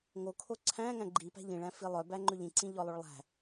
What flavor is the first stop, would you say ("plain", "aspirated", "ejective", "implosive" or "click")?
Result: aspirated